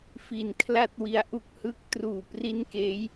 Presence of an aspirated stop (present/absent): present